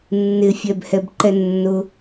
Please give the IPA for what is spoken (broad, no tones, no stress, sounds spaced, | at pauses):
nː ɪ fʲ ɛ b h ɛ b ǃ ɛ nː ʊ